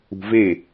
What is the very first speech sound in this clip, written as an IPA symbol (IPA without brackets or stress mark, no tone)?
ṳ